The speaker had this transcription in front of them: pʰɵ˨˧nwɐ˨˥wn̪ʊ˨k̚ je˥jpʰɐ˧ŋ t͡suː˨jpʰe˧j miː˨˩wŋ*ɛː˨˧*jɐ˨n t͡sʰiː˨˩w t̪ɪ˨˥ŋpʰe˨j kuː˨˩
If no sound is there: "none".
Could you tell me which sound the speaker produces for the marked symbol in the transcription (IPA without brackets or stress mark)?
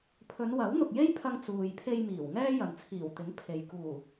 ɛː˥